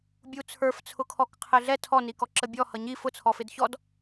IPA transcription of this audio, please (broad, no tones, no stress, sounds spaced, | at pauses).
bʲ u t͡sʰ ə˞ f t͡sʰ ʊ kʰ ɔ k qʰ ɪ ɮ ɛ tʰ ɔ n i k ɔ ǁ ə bʲ ɔ h ʌ ɲ i f ʊ t͡sʰ ɔ f ɪ d ç ɔ d